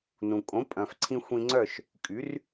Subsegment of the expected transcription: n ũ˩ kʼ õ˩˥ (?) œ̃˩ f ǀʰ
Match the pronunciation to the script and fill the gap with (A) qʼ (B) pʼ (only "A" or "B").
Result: B